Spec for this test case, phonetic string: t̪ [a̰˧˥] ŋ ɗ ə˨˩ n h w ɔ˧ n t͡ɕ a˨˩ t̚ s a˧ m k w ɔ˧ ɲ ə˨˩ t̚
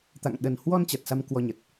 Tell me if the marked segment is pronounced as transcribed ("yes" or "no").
no